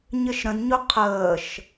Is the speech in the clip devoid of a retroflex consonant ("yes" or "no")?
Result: yes